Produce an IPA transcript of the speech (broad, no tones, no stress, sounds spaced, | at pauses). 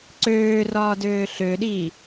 ǀ øː r ɒː d øː ɬ ø ɗ iː